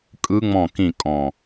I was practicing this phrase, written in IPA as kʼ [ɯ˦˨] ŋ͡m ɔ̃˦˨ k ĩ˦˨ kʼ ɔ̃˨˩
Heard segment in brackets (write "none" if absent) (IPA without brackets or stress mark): ɯ˦˥